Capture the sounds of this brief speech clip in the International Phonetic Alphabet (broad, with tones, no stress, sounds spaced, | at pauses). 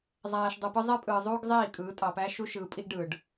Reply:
zˤ æː˨ ʃ dˤ ɯ˨ p ɯ˦ zˤ e˦ pʼ ɯː˨ zˤ uː˦ ɡ zˤ iː˦˨ kʼ ɯː˨˦ tʼ ɑ˨ p æː˦ ʃ u˦ ʃ ɯː˨ pʼ i˦ ɡ ɖ ɯː˨ ɖ